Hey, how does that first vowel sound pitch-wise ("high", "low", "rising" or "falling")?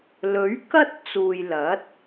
rising